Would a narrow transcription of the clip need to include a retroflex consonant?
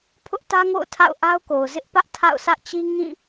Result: no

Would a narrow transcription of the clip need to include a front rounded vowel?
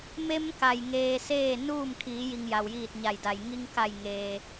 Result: no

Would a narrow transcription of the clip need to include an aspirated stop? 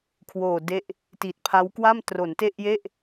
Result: yes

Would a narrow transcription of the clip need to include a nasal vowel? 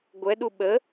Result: no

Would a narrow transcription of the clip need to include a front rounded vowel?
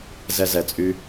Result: yes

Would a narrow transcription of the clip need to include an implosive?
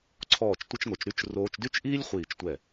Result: no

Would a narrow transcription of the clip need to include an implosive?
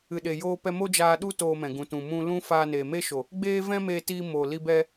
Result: yes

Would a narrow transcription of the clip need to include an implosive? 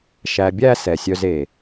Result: no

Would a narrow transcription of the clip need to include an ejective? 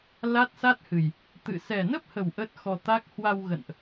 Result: no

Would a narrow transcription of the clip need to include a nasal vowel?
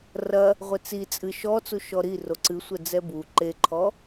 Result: no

